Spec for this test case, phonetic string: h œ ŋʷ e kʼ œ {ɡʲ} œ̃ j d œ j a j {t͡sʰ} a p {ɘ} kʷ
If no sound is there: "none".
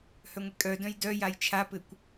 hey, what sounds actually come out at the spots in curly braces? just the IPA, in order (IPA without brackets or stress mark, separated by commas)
d, t͡ʃʰ, ɘ